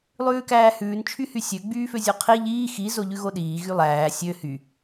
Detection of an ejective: absent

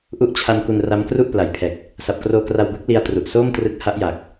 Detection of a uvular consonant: absent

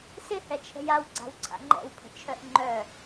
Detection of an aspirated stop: present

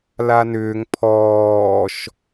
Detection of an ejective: absent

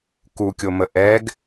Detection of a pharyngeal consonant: absent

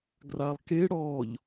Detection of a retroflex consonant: present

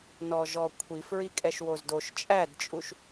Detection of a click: absent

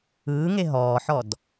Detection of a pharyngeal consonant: present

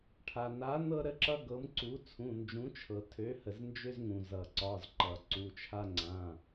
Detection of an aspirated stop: present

